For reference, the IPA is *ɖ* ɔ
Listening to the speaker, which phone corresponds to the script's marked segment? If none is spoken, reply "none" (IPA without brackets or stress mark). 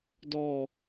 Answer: d